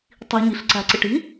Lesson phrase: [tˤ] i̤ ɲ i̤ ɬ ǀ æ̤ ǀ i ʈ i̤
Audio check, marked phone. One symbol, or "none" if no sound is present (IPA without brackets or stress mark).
tˤ